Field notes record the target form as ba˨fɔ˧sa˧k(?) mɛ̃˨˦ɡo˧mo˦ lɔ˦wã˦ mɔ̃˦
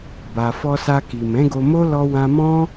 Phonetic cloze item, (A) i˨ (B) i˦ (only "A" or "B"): A